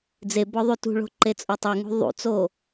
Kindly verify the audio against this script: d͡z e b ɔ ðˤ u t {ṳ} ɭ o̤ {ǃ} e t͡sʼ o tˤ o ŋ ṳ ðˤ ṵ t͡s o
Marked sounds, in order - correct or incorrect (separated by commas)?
correct, correct